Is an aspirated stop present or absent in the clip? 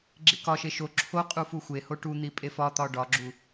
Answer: present